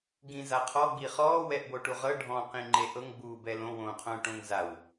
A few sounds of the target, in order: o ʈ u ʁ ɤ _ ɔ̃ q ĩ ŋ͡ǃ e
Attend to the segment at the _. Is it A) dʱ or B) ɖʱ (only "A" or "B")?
B